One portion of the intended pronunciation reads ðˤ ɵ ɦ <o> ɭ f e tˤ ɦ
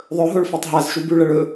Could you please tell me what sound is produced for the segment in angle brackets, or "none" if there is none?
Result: o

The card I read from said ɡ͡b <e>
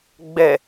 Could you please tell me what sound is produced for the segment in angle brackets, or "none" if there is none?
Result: ɛ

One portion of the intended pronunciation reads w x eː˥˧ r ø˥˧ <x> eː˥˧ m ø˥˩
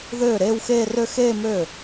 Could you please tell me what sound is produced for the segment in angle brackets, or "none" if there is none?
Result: x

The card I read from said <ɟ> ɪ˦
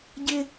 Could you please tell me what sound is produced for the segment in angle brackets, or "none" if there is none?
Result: ɟ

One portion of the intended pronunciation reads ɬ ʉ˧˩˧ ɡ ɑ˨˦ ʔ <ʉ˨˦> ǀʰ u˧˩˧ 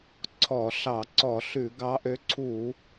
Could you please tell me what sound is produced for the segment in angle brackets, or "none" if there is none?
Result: ø˨˦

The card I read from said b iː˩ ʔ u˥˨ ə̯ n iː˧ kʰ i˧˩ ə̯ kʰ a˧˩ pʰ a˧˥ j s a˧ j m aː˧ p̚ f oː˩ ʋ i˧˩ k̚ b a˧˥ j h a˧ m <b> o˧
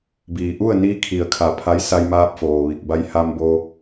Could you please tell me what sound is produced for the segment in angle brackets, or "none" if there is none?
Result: b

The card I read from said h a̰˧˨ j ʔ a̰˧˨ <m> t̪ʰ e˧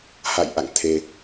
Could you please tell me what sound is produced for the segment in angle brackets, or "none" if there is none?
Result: ŋ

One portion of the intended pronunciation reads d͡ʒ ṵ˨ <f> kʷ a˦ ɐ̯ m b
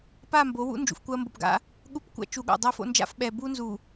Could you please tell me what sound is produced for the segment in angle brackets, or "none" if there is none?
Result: f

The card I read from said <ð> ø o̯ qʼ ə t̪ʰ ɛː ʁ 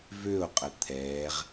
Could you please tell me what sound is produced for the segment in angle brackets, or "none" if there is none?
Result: v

